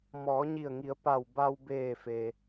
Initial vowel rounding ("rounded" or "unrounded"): rounded